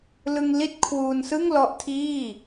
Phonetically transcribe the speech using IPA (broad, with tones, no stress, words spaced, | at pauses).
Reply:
lɯ˧ŋ li˥˩t̚kʰwuː˧n sɯ˥˩ŋlɔ˦˥ʔtʰiː˥˩